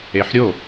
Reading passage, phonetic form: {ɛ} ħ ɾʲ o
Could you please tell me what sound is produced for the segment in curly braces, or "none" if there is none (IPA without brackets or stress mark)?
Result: e